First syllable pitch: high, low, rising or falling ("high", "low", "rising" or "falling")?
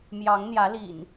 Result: rising